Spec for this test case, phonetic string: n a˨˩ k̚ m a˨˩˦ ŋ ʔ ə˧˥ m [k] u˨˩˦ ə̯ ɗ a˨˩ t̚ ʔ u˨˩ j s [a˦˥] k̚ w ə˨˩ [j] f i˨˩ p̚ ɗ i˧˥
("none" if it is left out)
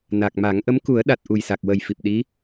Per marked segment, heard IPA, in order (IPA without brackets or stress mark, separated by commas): k, a˨˩, j